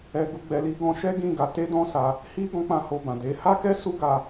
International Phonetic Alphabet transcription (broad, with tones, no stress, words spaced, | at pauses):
ɛ˨ɡu˨ɡ͡bɛ˨ li˨˦ ɡɔ̃˧ʃɛ˦ɡĩ˦˨ɡa˨˦ te˦dɔ̃˦sa˧ | hi˦ ɡɔ̃˦k͡pã˦˨ho˧bã˨ de˨˦ ha˦kɛ˦ su˦ɡa˧